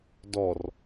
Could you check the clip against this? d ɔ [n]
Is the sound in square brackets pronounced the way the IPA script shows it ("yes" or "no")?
no